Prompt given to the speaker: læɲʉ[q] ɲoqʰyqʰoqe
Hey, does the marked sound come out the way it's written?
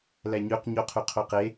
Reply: yes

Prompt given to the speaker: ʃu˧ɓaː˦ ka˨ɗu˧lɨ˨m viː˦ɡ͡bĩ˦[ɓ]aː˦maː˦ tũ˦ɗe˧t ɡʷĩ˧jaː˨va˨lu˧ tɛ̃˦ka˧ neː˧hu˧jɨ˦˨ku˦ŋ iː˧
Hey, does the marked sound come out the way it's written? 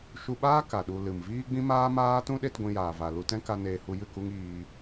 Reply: no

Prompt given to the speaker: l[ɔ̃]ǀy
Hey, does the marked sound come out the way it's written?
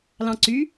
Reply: no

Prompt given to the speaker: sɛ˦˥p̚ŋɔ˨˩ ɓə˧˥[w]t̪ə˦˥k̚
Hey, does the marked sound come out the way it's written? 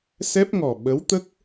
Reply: yes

